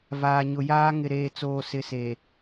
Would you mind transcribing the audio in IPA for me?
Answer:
vaː˨ɲʊ˨jaː˦ ŋɪ˨ɾeː˨t͡soː˨ sɪ˨ seː˨

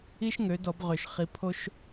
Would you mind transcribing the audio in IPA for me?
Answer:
i˥ʃ ŋø˩˥dɔ˨˩˦b ʁø˨˩ʃχi˩˥ pʰo˥ʃ

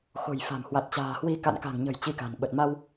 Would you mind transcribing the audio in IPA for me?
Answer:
xo̤˨˩jfa̤˨˩m hwa˨˩t̚t͡ɕa̤ː˨˩hwi˧ ka̰˧˨nka̤˨˩ŋɲə̤˨˩j t͡ɕi˧ka̤˨˩n ɓə˨˩t̚ma˧w

